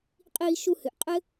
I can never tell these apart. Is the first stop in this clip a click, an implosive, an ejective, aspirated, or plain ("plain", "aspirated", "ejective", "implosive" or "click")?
ejective